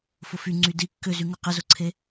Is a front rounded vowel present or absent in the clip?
present